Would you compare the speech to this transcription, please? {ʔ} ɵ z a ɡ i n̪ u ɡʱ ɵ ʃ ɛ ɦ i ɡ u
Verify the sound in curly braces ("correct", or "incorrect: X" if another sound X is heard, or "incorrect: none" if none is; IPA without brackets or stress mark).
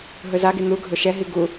incorrect: ɦ